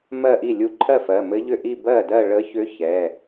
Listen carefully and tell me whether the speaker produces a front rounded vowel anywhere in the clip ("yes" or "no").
yes